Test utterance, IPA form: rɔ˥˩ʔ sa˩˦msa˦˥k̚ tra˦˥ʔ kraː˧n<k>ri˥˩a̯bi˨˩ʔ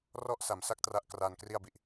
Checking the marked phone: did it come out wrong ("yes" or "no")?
no